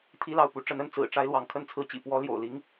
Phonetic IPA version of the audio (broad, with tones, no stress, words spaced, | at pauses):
t̪ʰi˥lɑ˥˩ʊ̯pu˧˥ ʈ͡ʂə˧˥nə˥˩n t͡sɹ̩˨˩ʈ͡ʂa˥ɪ̯lwɑ˧˥ŋ kʰə˥˧nt͡sʰɹ̩˥˩t͡ɕḭ˨˩ pwɔ˥ ljo̰˨˩ʊ̯ li˥ŋ